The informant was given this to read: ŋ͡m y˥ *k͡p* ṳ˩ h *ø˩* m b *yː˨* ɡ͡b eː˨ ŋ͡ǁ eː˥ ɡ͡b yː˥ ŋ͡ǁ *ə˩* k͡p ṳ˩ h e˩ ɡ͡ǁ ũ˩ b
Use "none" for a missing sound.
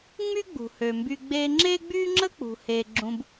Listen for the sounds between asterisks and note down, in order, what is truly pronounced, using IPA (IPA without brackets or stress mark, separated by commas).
ɡ͡b, ø˩, y˨, ə˥